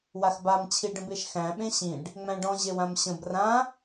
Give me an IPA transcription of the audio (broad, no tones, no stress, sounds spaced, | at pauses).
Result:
w a x b a m t͡ɕʰ i ɖ ə̃ b e ʃ x æ̃ ɓ ẽ ɕ ĩ ɖ | ŋ͡m æ̃ ɖ ɔ̃ ʑ e w ã m ɕ ə̃ b r ã